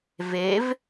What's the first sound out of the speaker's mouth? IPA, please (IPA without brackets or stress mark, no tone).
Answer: v